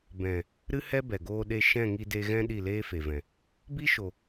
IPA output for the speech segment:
b ɛ̃˨ | ɾ ɨ˦ h ɛ˦ b ɛ˨ ɡ oː˧ ɗ e˧ ʃ ɛ̃˦˨ ŋ i˧ d e˧ ɣ ɛ̃˦ ɗ i˦˨ l eː˦ f e˨ v ɛ̃˨ | b i˦ ʃ o˨

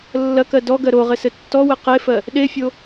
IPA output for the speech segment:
lː ɐ k ɜ d ɔ ɡ ɜ ɾ o ʁ ɘ s ɘ tː ɔ w ɘ q e f ɜ | ɗ e fʲ o

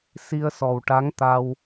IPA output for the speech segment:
s i˧ ə̯ s ɔ˨˩ w ʈ a˧˥ ŋ t̪ a˧ w

